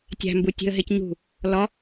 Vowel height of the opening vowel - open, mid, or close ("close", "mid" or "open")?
open